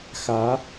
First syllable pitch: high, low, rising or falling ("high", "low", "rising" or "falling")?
rising